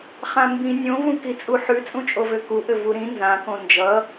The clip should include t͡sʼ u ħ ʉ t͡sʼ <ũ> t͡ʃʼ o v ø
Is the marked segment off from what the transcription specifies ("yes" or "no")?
no